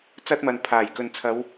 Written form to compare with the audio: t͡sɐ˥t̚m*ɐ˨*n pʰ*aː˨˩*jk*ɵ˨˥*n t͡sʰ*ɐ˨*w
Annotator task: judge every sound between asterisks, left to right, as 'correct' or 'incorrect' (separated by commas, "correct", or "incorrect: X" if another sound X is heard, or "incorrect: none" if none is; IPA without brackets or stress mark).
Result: correct, correct, incorrect: ɵ˨, incorrect: ɐ˨˧